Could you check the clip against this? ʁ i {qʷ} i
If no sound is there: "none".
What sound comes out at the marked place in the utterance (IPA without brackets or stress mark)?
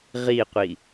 qʷ